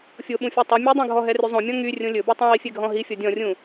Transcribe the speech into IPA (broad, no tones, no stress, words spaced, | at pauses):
fʲoɓũfʲɔ tˤu mʲudˤõɡʱɔɦɛ ryzˤõmʲɔ̃ ŋy rʲõlʲɵbo tˤɛ̃wifʲɛɡʱɔ̃ ɦifʲɔ dʲɔ̃rʲũ